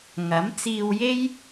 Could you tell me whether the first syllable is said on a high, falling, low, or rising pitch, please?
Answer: rising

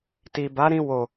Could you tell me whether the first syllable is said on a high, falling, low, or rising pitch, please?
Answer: low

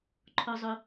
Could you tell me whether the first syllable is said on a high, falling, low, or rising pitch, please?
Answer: low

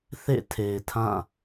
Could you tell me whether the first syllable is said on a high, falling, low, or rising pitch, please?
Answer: falling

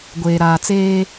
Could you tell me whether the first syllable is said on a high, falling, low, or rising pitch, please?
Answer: low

